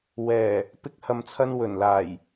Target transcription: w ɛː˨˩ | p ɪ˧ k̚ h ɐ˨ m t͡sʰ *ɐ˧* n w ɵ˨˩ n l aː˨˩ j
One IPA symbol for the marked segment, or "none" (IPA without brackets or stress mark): ɐ˧